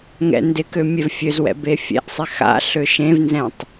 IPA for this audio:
ŋ ɛ̰ n d ɪ k ø mʲ ɛ v fʲ ø z w ɛ̰ b e fʲ ɛ̰ ʔ sˤ ɪ x a̰ ɬ ø ʃ ẽ v n z ɛ̃ tˤ

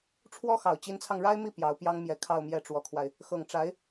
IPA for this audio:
ʈ͡ʂʰ w ɔ˥ x ɑ˨˩ ʊ̯ t͡ɕ i˧˥ n t͡sʰ ɑ˧ ŋ ɻ a˥ ɪ̯ m i˥˩ p j ɑ˧˥ ʊ̯ p j ɑ˥ ŋ m j ɛ˧˥ kʰ ɑ˥˧ ʊ̯ m j ɛ˥˩ ʈ͡ʂ w ɔ˧˥ kʰ w a˧ ɪ̯ | x ɤ˨˩ ŋ ʈ͡ʂ a˧˥ ɪ̯

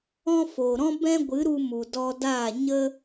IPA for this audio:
ɔ̃˦ f o˨ ɾ ɔ̃˦ b ɛ̃˦ ɡʷ ɨ˨˦ ɾ u˧ m u˨ d ɔ˧ d aː˦˨ ɲ ə˦

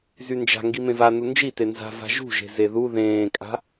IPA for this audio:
z y n d͡ʒ a̤ ŋ ɡ i m ẽ v a n u n d͡ʒ i t e n z a̤ v a̤ ʒ ṳ ʒ e̤ z e ð u ð ẽː kʼ a̤

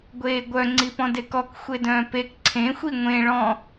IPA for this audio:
ɡʷ eː ɡʷ œ ŋ͡ǀ i p ɔ̃ d e k ɔ k xʷ e d œ̃ː p e k ǀʰ ẽ xʷ i ŋʷ ẽ ɭ ɔ̃

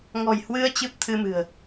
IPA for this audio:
ŋ ɔ̤˨˩ j h w ɨ˧ ə̯ t͡ɕ ɨ˦˥ p̚ t̪ʰ ɨ˧ m ɨ̤˨˩ ə̯

